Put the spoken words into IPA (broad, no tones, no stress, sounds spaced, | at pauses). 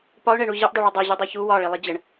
p ɒ ʊ̯ ɳ ɛ ɳ u ʑ ɛ ʔ dˤ œ ɭ œ dˤ æ ʑ u dˤ æ ç u w ɒ ɭ i lˠ i d͡ʑ ə ɳ